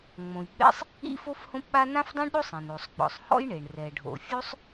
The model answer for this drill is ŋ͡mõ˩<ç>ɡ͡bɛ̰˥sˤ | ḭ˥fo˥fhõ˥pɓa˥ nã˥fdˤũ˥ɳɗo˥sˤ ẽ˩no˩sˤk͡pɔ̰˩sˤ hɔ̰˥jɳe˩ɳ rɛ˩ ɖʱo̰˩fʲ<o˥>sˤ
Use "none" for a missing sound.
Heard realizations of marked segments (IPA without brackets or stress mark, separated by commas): j, o˥